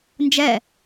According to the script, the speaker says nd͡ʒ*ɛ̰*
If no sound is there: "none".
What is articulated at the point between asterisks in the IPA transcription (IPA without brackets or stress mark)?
ɛ